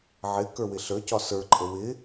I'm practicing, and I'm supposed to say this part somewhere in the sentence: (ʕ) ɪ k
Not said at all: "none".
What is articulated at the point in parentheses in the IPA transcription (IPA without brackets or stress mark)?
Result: ʕ